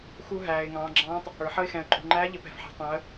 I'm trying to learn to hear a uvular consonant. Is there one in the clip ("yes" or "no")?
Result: no